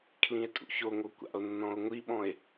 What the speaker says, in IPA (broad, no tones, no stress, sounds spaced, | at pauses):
kʰ l ĩ e̯ tʼ ṵ ç o ŋ o kʷ a̰ o̯ nː ɔ̃ o̯ ŋʷ i ɓ ɔ̃ e̯